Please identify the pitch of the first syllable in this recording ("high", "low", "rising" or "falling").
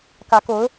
rising